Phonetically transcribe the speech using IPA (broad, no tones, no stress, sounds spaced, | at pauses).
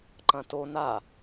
ǃ ɐ̃ t o n a